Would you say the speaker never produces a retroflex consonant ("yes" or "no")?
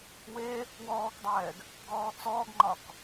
yes